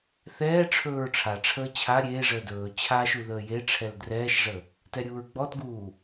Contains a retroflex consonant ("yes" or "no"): yes